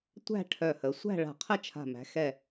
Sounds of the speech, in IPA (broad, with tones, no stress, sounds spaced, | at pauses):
tʷ æ̤˥˨ ʈʰ œ˧˩ h ə˩˧ sʷ æ̤˥˨ ɭ a̤˧˩ qʰ ə˥˨ t͡ʃʰ a̤˧˩ m æ̤˩˧ x ɛ˧˩